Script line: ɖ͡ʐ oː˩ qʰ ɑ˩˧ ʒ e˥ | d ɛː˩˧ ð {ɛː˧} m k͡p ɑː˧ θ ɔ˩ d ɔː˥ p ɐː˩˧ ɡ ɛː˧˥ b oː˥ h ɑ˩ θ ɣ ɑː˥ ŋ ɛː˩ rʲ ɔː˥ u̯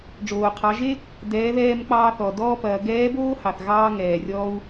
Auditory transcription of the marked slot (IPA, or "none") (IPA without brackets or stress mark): ɛː˧